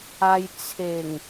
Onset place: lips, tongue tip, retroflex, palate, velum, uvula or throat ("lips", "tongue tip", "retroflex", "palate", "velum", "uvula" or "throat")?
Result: palate